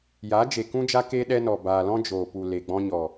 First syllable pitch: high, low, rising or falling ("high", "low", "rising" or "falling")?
rising